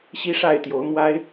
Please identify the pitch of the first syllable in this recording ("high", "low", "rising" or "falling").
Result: high